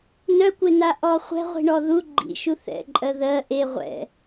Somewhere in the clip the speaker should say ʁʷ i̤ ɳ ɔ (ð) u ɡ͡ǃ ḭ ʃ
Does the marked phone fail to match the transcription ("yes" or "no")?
no